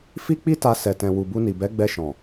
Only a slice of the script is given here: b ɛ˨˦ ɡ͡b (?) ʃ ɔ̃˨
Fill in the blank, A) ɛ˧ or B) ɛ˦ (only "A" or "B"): A